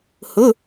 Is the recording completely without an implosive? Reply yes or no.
yes